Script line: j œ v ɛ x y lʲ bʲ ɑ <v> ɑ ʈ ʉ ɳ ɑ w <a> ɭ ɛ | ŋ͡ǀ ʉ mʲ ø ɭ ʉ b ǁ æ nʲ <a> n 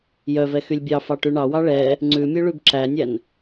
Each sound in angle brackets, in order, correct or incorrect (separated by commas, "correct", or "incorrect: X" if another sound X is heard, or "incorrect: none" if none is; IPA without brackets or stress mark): incorrect: f, incorrect: ɑ, incorrect: æ